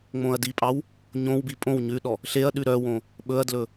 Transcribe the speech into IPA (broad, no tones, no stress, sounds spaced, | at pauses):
ŋ͡m õ ɐ̯ d i pʼ ɑ w | ɲ õ w b i pʼ õ w ɲ ʉ ɗ ɔ | ɬ e ɐ̯ ɗ ʉ ɾ œ w õ | ɓ ɵ ɐ̯ d l ɵ